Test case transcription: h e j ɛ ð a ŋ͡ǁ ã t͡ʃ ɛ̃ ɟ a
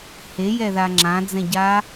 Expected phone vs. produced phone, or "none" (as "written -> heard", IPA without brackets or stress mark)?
t͡ʃ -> d͡z